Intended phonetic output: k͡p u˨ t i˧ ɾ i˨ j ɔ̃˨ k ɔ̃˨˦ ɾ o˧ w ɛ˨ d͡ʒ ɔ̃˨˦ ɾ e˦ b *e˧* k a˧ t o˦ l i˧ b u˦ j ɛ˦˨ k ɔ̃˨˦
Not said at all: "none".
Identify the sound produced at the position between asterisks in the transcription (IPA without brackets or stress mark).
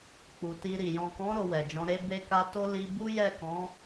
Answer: e˧